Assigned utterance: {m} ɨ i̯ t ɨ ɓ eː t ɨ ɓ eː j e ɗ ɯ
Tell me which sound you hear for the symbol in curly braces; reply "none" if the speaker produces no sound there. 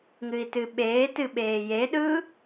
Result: ŋ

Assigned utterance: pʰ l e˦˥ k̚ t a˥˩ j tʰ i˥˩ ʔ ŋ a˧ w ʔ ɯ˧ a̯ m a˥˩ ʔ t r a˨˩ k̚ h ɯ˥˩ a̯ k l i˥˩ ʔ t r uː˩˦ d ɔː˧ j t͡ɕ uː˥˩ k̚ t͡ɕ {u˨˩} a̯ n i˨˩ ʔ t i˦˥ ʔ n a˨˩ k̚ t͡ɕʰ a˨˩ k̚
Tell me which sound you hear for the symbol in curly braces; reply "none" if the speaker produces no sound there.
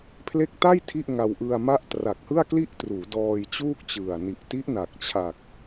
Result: ɯ˨˩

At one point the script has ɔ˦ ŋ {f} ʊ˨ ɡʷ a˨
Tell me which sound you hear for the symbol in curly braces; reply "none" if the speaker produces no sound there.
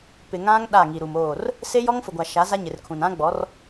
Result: f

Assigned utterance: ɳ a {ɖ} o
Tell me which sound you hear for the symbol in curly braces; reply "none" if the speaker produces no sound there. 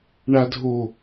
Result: dʱ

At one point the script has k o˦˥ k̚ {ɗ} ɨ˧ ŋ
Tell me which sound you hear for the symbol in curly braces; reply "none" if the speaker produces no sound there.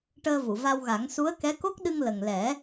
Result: ɗ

